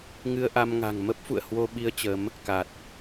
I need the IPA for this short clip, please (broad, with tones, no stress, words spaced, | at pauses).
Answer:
ŋɨ˧ə̯ʔa˧mŋa̤˨˩ŋ mə˦˥p̚fṵ˧˨ə̯ hwo˧ɓi˧ə̯ t͡ɕə˨˦m | ka˨˩t̚